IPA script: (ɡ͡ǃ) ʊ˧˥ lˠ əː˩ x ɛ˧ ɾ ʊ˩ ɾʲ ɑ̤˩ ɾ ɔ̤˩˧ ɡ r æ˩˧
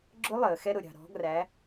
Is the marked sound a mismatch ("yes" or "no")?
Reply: yes